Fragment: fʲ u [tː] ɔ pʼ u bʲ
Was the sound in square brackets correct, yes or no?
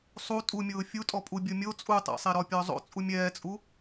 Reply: no